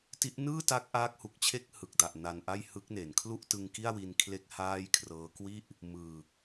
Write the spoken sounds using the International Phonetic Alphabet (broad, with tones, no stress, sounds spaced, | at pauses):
t i˦˥ ʔ n ɯː˥˩ t a˦˥ k̚ ʔ aː˦˥ k̚ h u˨˩ k̚ t͡ɕʰ e˥˩ k̚ h ɯ˨˩ k̚ d a˨˩ ʔ n a˧ n ʔ a˥˩ j h ɯ˦˥ k̚ n e˩˦ n kʰ l u˥˩ ʔ t ɯ˧ ŋ k i˥˩ a̯ w i˧ n kʰ l e˥˩ k̚ h aː˥˩ j kʰ r ɤː˦˥ k w i˥˩ ʔ | m ɯː˨˩ k̚